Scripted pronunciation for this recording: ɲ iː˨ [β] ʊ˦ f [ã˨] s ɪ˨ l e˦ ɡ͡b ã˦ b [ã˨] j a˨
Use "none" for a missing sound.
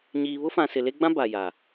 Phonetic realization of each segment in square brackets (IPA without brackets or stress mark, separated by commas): β, ã˨, a˨